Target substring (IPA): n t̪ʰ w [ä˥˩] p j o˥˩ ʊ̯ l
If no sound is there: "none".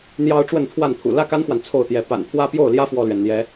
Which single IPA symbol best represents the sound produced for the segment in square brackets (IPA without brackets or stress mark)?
ä˥